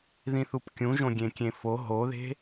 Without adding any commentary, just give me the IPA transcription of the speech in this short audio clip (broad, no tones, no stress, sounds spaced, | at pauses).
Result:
ð ĩ θ u p kʲ ũ ʒ õ ɡʲ ẽ kʲ ẽ f o ɦ o ð e̤